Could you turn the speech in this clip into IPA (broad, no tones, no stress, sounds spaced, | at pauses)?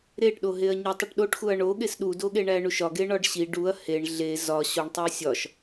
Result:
ɾ e ʈ ɗ o ɦ e ɐ̯ ɲ o tˤ u ʈ ɗ o ʈ x u ɐ̯ ɳ o ɠ e s ɗ u d o ɠ e ɳ æ ɳ u ʃ ɒ ɡ e ɳ ɒ ɖ ɕ i ɖ u ɐ̯ h e ɳ ɮ e z ɒ ɕ o ɳ tˤ o sʲ ɒ ʃ